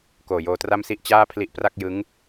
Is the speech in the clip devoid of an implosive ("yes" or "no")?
yes